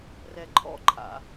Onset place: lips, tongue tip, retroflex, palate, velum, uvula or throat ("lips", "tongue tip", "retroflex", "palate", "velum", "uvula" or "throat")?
tongue tip